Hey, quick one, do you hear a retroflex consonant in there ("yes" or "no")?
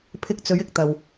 no